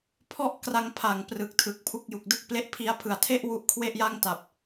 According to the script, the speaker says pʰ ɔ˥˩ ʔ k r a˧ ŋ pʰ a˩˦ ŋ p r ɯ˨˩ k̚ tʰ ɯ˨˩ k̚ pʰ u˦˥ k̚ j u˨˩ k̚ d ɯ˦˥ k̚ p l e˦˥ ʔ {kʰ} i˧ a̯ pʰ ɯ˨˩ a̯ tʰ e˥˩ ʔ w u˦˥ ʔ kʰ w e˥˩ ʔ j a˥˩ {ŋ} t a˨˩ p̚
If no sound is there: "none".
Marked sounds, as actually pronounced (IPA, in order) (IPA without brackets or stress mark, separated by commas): pʰ, ŋ